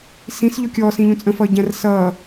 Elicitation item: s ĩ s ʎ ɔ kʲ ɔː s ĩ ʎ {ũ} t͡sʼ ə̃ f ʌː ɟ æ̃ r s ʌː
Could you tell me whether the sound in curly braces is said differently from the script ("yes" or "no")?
no